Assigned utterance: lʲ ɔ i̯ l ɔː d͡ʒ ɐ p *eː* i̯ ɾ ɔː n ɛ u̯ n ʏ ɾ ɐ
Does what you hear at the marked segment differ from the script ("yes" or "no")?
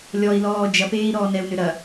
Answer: no